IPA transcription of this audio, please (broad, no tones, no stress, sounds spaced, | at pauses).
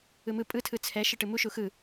ɯ m ɯ pʼ ɯ tʰ ɯ t͡sʰ ɛ ʃ ɯ ʈ ɯ m u ʃ u x ɯ